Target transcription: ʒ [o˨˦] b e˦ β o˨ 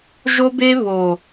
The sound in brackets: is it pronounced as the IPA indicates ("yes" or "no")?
no